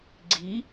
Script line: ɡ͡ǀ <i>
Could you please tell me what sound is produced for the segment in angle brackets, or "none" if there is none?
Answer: i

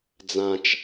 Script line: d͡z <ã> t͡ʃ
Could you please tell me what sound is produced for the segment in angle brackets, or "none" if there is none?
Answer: ã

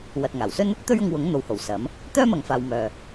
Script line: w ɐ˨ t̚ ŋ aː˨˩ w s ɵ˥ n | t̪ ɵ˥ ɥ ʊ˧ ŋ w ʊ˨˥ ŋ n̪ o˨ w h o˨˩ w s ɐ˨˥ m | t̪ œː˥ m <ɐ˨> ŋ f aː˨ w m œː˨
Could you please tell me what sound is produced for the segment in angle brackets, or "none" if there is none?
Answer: ɐ˨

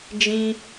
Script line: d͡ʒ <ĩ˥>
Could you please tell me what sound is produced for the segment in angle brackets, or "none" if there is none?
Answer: ĩ˧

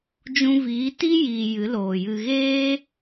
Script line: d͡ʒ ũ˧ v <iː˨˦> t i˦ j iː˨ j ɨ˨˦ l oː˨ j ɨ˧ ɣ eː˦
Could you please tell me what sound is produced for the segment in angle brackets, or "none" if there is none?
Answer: iː˨˦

